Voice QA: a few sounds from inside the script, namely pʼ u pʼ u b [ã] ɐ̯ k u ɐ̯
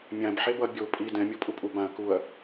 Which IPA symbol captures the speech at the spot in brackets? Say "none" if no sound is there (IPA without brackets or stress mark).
ã